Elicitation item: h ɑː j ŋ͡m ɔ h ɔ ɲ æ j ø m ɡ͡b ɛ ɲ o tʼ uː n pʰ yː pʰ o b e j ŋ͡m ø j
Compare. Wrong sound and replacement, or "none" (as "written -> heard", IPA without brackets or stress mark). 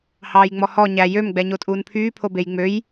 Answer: none